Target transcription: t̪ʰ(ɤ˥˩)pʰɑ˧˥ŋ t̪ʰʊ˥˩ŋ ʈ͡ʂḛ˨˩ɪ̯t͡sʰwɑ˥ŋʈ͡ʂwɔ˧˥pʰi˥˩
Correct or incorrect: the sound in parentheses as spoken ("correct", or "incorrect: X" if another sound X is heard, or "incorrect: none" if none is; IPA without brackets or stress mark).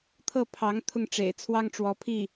correct